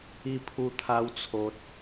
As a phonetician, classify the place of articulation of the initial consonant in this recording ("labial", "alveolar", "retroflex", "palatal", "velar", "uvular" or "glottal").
labial